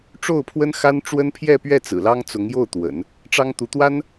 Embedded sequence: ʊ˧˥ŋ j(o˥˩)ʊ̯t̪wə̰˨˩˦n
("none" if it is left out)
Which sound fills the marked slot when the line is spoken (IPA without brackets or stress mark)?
o˥˩